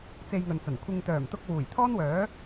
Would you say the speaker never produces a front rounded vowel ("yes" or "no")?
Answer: no